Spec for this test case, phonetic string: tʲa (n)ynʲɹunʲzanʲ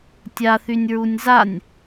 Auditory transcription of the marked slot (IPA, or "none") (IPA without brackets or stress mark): θ